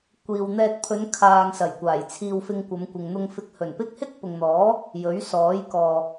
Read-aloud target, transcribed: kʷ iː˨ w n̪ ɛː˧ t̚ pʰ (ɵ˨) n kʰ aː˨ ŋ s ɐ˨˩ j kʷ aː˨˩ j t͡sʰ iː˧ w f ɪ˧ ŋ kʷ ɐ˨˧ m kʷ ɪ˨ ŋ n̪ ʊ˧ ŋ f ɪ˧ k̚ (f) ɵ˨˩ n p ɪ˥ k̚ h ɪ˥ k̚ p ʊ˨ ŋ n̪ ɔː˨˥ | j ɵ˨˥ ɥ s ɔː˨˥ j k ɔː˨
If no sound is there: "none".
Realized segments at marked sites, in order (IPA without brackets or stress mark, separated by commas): ɵ˨˧, h